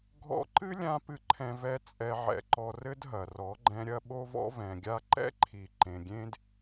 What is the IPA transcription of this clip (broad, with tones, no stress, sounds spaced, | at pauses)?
ɡʱ ɔ̰˧ ǃ ɨ˦ lʲ ã˧ p ɨ˦ ǃʰ ɛ̃˧ v ɛ˧ t͡sʼ ɛ˧ ʕ ɛ̰˧ ǃ ɔ˧ r ɘ˧ d ɦ ɐ˨ r ɔ˨˦ ɡ͡ǃ ɛ̃˧ ɾʲ ɐ˦ ɓ o˧ v ɔ̰˧ v ɛ̃˨ ɡʲ a˧ ǃ ɛ̰˦ ǃʰ i˨ ǃ ẽ˨ ɡʲ ẽ˦ d